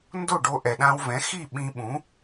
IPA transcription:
ndo˥˩ɖo˧ ʔɛ˩ɗã˧wvɛ̃˩˥ xi˥˩ ɓĩ˧ ɓũ˩˥

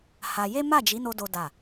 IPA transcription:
ha˧ je˦ ma˦˨d͡ʒi˨˦no˧ do˦da˦˨

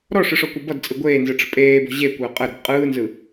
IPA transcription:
ɾɔʂɯʂɔkʷə bʌdt͡sʼɯ ɡʷeːnzɯʈ͡ʂə̤ pʼeːbɔ̤ ʑekʷəː qʼəɾə̤b qʼɯːnzɯ

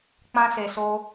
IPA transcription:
k͡pã˧se˨so˧

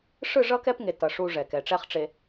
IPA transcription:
ʂɯ˦˨ʐʌ˦kɛ˦pŋe˨ tʌ˨ ʂu˦ ʐɛ˨kɛ˨ ʈ͡ʂɛ˦χʈ͡ʂe˨

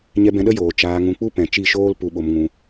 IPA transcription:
ɲɛ˧bɛ̃˧ɗə˦ joː˨ t͡ʃaː˧ŋũ˧ k͡pu˦pɛ̃˨t͡ʃi˦˨ʃoː˦l pu˦ɓo˦m ŋũ˧

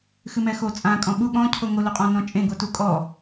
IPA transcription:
xɨmɛxo t͡sʼã kʼɔ̃ɓu ɠɔ̃ cʰoŋo loqʼɔ̃nɔ̃t͡ʃʼẽ ɡotukʼɔ

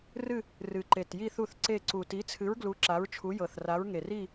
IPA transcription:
rɨ˦˨ | rɨ˨˩ǃe˨˩t ji˦˨θu˦˨θǀe˦˨ ǀu˨˩ti˨˥t͡sʰɨ˨˥ɹ ɡlu˨˥ǁa˨˥ɹt͡ʃʰu˨˥ jɤ˨˩θra˨˥ɹŋe˨˩r i˦˨

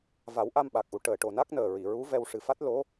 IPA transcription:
va˨˩˦wʔa˧m ɓa˨˩k̚ʔu˨˩ ʈəː˨˩ʈo˨˩na˦˥k̚ nəː˨˩ɹi˨˩˨ɹu˧˥vɛ˧w ʂɨ˨˩fa˦˥t̚ lo˧˥

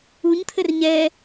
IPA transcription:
uɲt̪ʰɘr ɲɛ

